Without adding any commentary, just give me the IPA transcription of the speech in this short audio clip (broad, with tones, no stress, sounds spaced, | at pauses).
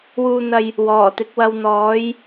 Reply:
w uː˧ n̪ ɐ˧ j | w ɔː˨˩ t̪ ɪ˨˥ k̚ w ɐ˧ w n̪ ɔː˨˥ j